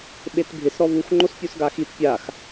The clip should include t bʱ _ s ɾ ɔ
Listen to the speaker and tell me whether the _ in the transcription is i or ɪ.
ɪ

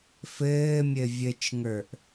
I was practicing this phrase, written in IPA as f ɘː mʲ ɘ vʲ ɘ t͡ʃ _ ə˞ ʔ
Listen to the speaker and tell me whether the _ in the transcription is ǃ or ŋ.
ŋ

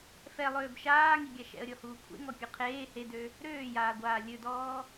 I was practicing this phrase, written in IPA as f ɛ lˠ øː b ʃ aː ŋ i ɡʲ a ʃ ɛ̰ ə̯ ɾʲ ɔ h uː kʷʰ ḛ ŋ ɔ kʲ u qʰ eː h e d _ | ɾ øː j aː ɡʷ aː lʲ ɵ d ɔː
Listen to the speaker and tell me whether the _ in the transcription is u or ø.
ø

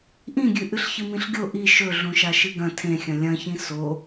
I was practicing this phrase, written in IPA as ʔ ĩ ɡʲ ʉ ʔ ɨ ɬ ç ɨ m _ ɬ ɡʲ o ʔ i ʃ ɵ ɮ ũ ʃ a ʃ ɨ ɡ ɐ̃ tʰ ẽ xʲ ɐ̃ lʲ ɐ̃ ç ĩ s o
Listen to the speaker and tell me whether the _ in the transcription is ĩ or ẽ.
ĩ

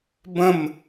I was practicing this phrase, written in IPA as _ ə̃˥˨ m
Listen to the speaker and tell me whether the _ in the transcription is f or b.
b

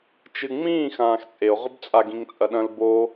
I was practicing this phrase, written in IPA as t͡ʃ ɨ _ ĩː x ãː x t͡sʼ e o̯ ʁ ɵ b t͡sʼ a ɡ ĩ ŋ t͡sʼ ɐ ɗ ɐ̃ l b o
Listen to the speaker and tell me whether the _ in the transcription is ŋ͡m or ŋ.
ŋ͡m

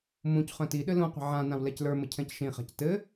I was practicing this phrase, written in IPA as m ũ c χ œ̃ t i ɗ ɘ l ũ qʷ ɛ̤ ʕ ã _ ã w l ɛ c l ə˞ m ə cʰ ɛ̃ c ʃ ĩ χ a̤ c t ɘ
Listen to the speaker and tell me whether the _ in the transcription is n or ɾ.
n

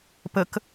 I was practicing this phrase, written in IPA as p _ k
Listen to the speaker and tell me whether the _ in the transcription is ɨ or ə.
ə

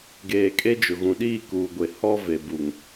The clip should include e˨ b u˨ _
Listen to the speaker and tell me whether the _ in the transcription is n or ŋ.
ŋ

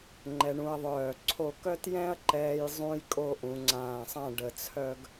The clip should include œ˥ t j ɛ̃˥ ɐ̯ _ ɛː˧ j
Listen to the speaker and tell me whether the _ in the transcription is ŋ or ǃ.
ǃ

